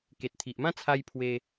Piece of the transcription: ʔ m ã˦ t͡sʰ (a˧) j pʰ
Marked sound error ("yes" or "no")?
no